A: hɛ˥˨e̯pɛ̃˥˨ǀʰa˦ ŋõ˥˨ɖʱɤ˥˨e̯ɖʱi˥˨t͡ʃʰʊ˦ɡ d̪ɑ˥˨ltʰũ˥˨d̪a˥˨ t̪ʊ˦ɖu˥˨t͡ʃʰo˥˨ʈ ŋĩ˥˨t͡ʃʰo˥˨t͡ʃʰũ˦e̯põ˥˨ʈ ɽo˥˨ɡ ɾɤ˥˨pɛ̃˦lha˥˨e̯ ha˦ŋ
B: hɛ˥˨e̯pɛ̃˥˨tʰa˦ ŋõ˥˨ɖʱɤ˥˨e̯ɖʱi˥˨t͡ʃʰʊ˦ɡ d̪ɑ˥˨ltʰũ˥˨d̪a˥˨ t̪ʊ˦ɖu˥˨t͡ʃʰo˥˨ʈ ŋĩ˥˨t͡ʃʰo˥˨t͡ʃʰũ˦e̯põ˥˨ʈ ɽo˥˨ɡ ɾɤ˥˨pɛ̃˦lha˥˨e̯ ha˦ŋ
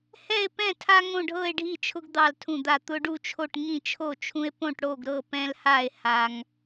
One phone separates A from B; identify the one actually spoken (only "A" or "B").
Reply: B